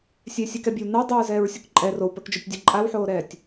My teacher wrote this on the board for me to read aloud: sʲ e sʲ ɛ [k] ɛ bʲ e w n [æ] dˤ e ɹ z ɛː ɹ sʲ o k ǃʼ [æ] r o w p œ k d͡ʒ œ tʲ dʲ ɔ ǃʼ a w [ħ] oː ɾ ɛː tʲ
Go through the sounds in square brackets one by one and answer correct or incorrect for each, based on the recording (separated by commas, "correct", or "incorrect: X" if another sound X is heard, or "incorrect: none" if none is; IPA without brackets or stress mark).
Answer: correct, incorrect: a, incorrect: ɛ, correct